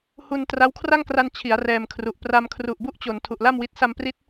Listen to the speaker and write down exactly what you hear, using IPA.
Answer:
hu˧n tra˦˥wkʰra˥˩ŋkra˧n t͡ɕʰi˩˦a̯ rɛː˧mkʰru˨˩ʔ pra˧mkʰru˨˩ʔbu˥˩ʔt͡ɕo˩˦n tʰu˨˩ʔla˥˩mwi˦˥t̚ sa˧mpri˦˥t̚

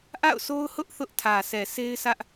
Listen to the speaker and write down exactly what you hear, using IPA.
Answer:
ʔa̰˦˨ʊ̯so˦ʊ̯hʊ˦ʔ θʊ˦ʔtʰä˨sʰɛ˨ se˦ɪ̯sʰä˦ʔ

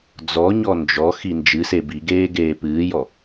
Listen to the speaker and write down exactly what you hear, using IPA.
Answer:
d͡zɔɲɔ nd͡ʒɔ xind͡ʒɨse biɡeː ɡeːpɨːjɔ

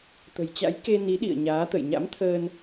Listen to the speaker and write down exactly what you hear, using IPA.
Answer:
t̪ə̤˨˩jt͡ɕa̰˧˥j ke˧ni˨˦ ɗḭ˧˨ə̯ ɲaː˨˦t̪ə̰˧˨j ɲa̰˧˥mt̪ʰəː˧n

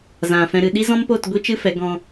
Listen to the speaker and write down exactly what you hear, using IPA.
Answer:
zã˨fɛ̃˧ɾɨ˧ ɗi˦zɔ̃˦mpo˦˨t ɡʷi˦t͡ʃɨ˦fɛ˨˦ ɡɔ̃˦

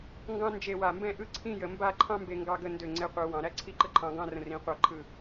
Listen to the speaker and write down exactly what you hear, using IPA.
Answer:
ŋɡɑ̃˥ nd͡ʒe˥˧ wa˧˩mbɛ̃˥˧ʔɯ˥˧ ǀʰĩ˥˧jə˩˧mba˥˧ǃʰɑ̃˥ mbe˧ŋɡɑ˧ɡə˧ ndø˧˩ ŋ͡ǀe˧qʷɯ˩˧ wɑ̃˩˧ɾæ˥ǀʰi˥˧ǃə˥ ǃʰɑ̃˧ɡɑ̃˥˧rə̃˧˩rĩ˩˧ qʷɑ˧˩ ǃʰɯ˧˩

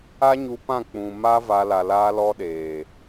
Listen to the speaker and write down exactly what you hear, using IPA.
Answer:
a˦ɲu˧pã˦˨ k͡pũ˨ma˦ va˧ la˨laː˧lɔ˧ɗeː˨

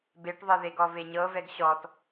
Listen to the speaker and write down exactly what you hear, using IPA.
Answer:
beʈðˤɤðeɡɔ veɲɤvɛɡ ɕɔt

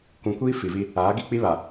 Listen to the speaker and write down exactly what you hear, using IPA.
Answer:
kʷũ˨kʷiː˦ fi˨vi˦ | aː˨˦ɡi˦k͡pi˦ βa˨

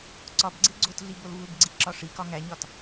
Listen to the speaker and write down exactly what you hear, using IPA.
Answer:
ǀɒbɡ͡ǀe ɡ͡ǀotɮi bolvubɡ͡ǀi ǁɒʂikɒ ŋæɲɒt

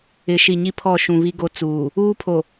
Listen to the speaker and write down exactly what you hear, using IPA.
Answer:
ɪ˨ʃi˨ ɲi˦pʰɔ˦˨ ʃũ˨βi˦ɡo˦ t͡suː˨ | uː˦pʰo˨

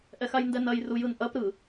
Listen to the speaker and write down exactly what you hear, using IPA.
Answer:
ʔɛxajndɛnɐj rujɯnʔɐp ɾɯ

